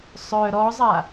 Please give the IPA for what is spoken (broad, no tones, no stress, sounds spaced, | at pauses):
sˤ œ ɾ ɔ zˤ a